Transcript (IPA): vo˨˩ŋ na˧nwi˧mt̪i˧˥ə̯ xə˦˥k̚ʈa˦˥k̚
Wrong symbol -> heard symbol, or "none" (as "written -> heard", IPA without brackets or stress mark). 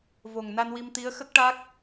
none